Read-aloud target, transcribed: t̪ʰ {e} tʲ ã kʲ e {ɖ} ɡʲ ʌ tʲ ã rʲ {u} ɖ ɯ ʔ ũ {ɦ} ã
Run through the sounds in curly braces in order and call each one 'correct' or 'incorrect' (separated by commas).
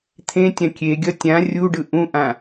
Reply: incorrect, incorrect, correct, incorrect